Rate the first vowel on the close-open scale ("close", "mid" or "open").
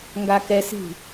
open